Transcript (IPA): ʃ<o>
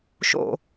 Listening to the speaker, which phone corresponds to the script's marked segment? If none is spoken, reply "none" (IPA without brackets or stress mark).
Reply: o̰